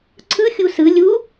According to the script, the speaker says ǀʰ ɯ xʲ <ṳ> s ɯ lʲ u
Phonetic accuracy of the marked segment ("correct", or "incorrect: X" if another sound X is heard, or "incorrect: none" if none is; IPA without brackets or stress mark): incorrect: u